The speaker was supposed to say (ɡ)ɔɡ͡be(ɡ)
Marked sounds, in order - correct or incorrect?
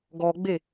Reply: correct, incorrect: none

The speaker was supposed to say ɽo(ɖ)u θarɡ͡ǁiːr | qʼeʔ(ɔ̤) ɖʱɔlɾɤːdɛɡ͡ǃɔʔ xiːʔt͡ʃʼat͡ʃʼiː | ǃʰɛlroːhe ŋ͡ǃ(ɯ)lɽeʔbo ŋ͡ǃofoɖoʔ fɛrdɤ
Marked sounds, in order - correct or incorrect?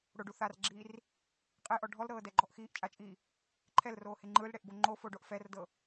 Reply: correct, incorrect: ɔ, correct

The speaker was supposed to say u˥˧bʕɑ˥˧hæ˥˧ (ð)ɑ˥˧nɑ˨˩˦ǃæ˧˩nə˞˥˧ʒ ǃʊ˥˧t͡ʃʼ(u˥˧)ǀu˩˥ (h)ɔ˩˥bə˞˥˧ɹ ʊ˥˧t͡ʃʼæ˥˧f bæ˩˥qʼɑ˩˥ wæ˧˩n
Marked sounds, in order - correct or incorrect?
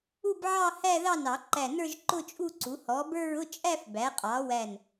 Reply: correct, correct, correct

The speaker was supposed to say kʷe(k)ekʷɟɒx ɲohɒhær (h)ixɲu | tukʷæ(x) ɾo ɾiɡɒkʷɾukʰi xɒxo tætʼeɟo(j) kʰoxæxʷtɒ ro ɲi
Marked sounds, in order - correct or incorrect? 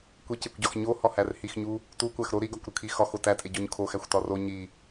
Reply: incorrect: c, correct, correct, incorrect: ɲ

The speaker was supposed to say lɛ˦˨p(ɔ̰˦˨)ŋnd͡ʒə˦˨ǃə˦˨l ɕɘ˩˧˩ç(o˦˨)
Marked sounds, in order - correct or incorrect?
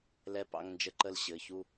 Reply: incorrect: ɑ̰˦˨, incorrect: u˦˨

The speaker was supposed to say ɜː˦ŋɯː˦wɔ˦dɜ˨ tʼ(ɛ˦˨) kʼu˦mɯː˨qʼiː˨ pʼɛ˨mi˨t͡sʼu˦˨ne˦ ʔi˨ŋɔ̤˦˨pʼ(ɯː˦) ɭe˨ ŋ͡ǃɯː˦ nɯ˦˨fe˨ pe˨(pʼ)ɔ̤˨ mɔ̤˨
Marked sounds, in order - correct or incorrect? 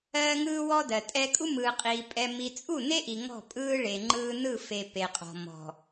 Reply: incorrect: ɛ˦, correct, incorrect: qʼ

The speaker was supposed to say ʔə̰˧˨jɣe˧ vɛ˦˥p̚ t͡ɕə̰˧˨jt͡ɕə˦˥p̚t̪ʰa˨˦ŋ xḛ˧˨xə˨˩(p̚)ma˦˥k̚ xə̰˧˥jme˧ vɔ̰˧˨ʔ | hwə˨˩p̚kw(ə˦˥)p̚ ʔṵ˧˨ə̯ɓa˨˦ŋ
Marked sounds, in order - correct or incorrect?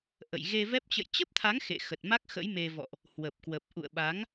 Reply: incorrect: t̚, incorrect: ə˨˩

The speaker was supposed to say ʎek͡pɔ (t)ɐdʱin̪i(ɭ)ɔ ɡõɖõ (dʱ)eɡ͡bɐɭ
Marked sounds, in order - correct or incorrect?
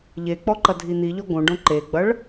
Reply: incorrect: ǃ, incorrect: ʎ, incorrect: ǃ

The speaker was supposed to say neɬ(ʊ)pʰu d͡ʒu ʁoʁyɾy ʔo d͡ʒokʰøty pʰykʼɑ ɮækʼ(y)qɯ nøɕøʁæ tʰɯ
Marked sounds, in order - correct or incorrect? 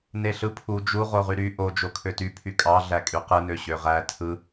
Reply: incorrect: ɯ, correct

